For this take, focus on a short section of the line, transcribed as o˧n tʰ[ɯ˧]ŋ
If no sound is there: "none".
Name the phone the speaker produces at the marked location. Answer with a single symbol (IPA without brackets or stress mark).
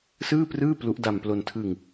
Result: ɯ˧